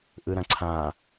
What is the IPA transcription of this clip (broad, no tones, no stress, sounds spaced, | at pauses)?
ʔ ɯ ɾ ɐ̃ ǀʰ ã